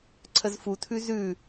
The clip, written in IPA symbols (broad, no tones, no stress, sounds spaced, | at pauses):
ǀʰ ə z f u tʰ ʉ z ʉ